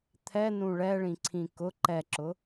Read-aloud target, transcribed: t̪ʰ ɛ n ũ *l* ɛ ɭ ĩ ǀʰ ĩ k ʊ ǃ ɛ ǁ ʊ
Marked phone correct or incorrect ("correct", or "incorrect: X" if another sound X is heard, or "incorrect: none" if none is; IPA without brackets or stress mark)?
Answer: incorrect: ɭ